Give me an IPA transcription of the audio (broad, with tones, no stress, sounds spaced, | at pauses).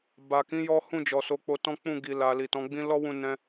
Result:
b a˨ k ĩ˨˦ j ɔ˦ h ũ˦˨ d͡ʒ ɔ˨ s o˨˦ k͡p o˧ t ɔ̃˦ k͡p ũ˦˨ ɡ i˨ l a˨ l i˨ t ɔ̃˨˦ ɡ͡b ĩ˦ l ɔ˦ w ũ˧ n ɛ̃˦